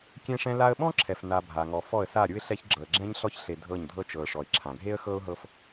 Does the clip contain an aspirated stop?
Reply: yes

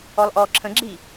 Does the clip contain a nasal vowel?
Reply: yes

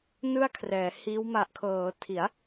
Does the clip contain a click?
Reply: no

